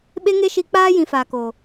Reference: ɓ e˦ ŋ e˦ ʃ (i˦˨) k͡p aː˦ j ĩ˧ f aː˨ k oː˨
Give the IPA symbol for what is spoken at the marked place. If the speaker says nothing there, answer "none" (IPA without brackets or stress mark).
i˧